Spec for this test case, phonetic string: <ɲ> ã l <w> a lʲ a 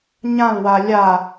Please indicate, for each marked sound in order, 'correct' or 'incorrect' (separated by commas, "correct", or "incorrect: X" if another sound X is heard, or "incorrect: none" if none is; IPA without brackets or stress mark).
correct, correct